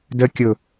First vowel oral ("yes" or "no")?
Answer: yes